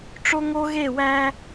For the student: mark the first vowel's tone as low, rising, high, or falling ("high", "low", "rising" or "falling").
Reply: high